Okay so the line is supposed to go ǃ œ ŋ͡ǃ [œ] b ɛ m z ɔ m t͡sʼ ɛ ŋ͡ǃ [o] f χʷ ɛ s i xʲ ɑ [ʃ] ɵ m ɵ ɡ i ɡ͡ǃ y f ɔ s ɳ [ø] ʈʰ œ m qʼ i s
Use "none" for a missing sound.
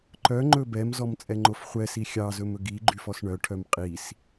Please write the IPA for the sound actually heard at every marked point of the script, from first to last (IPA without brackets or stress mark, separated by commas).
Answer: ɵ, o, z, œ